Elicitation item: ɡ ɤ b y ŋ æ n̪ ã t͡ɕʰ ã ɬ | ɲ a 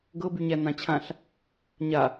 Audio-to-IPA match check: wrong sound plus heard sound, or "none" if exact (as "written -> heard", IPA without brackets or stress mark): ŋ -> ɲ